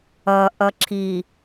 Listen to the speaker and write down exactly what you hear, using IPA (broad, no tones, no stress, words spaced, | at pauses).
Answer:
ʌʔʌ ǁʰi